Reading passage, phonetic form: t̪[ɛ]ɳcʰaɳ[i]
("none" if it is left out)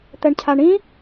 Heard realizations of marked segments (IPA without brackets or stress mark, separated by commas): ɛ, ĩ